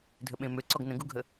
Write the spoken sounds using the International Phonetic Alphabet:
dʱəɓẽmøǀɔɡ nə̃ɡuɡʱə

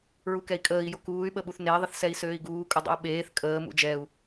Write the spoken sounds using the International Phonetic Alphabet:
ɹukɛi̯kʼəːi̯ jokuːy̯ɓəɓuθ nei̯ðˤəθsɛi̯ søːi̯ɡuːkʼodˤə̰u̯ ɓeːθ kʼəː mṵd͡ʒɛu̯

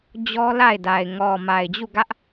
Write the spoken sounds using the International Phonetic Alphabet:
d͡ʑɔ˦la˦˨ɪ̯da˨ɪ̯ ŋɔ˨ ma˨ɪ̯d͡ʑu˦˨ɡä˦ʔ

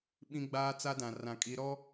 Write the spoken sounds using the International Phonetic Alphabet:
ɓĩ˦ɡ͡baː˦ t͡sa˦dã˨ rã˨kʼi˨˦ɾɔ˦

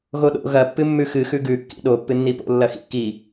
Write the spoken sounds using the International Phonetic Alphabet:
ɣoɗo̰ ɣɐ pːɨmːʉxɨ xʉɡʉ kːḭɗo pːɨnːipo̰ lːɐxḭkːi

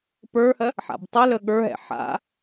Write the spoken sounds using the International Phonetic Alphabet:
pə˞hɜ | ħa̰btˤʊlə ɠə˞ɦɛ̰ ħa̰

